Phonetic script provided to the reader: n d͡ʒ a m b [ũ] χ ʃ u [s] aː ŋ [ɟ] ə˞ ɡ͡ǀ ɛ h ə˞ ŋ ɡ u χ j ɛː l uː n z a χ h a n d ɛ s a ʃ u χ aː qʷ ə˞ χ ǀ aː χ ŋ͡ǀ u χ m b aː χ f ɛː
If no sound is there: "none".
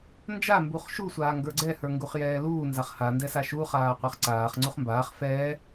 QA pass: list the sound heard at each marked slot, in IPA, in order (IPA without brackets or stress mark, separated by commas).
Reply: u, sʷ, ɡ